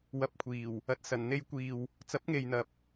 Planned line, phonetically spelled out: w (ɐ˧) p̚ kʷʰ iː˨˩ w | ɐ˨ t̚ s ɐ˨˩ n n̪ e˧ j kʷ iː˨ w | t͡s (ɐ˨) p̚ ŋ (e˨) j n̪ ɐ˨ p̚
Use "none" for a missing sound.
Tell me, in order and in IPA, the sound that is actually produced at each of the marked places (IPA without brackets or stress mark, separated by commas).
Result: ɐ˧, ɐ˨˥, e˨